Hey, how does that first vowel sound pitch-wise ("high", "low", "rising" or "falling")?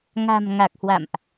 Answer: low